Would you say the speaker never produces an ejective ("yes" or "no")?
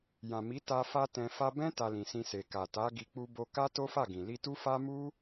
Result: yes